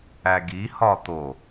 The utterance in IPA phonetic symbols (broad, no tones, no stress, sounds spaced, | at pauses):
æ ɡ i h ɒ t̪ o